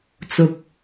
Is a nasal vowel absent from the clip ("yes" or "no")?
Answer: yes